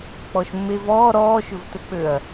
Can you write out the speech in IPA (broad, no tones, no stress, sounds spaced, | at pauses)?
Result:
k͡p ɔ ʃ mː e v ɔː ɾ ɔː ʃ ɵ v t ɵ k͡p ø ɐ̯